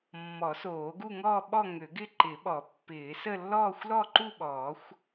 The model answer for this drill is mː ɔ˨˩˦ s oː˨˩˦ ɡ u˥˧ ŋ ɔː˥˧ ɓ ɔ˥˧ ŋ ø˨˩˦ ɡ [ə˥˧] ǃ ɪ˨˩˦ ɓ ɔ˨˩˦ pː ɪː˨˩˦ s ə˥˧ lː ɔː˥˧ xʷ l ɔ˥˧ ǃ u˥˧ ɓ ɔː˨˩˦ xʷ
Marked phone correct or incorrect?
incorrect